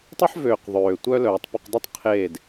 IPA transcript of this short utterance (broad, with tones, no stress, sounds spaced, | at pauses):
tˤ y˥ ħ v øː˧ q ðˤ øː˧ tʷ œ˥ l œː˧ tˤ p ʏ˥˧ q dˤ i˥ tˤ qʰ eː˥˧ d